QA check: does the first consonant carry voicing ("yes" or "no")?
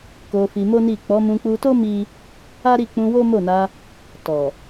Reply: no